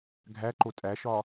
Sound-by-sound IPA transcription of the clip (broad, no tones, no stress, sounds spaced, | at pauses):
ɡʱ æ ǃ o tʼ æ ʃ ɒ